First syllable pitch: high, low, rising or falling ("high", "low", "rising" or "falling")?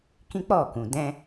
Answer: high